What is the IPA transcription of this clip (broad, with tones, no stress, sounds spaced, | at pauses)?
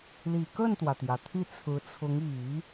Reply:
l i˨˩ k ə˥˩ n t̪ w ä˩ t̪ j ä˩ t̪ʰ i˥˩ t͡sʰ ɹ̩˧˥ t͡sʰ ʊ˧˥ ŋ i˨˩˦